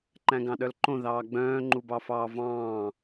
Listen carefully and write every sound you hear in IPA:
ǃæ̃ɡɑ̃ɗœlǃõ ðɑːɡ͡bœ̃ː ŋ͡ǃubɑfɑːvɑ̃ː

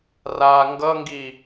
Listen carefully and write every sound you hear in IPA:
ra ŋɡʌŋɡi

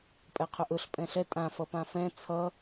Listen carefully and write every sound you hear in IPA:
pʼɛqʰɵʔɵɬ pʼɛ̃ɬɛ tʼãfʌ pãfɛ̃ t͡sʰʌ

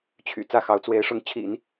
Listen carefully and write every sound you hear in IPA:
t͡ɕʰy̰˨˩ t͡sä˥˩xɑ˧˥ʊ̯ t͡swe˧˥ɪ̯ʂʊ˧˥ŋt͡ɕʰḭ˨˩˦n

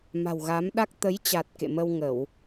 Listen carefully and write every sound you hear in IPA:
ma̤˨˩wɣa˨˦mɗa˦˥k̚ t̪ə˨˦jt͡ɕa˨˩t̚ kḛ˧˨mə˧wŋə˧˩˨w

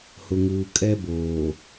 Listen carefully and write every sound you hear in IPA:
hʊ˨ŋuː˨ kʼɛ˦boː˨

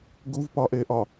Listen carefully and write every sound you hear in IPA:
ɡuvpɒʔeʔɒ

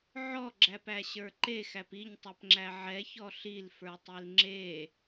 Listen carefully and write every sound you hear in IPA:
ʕɔɡ͡ǁæpæɕə˞ ǃexæp iɲtˤɛpŋ͡ǁæ ʕɛçɔ ɬilfə˞tˤil ŋ͡ǁe

